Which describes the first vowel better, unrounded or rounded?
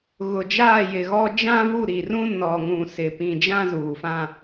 rounded